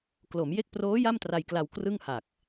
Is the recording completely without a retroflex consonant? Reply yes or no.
yes